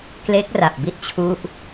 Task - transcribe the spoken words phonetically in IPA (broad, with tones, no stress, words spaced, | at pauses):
kle˦˥k̚ra˨˩p̚bi˦˥t̚t͡ɕʰu˦˥ʔ